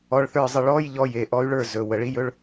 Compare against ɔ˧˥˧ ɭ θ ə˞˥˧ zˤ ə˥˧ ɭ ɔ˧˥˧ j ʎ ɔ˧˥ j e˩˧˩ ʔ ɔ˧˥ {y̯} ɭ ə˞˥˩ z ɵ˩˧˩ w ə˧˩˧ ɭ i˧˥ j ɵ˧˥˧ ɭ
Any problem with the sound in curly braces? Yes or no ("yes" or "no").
no